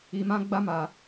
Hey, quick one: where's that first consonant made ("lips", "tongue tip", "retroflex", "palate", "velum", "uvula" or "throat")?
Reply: lips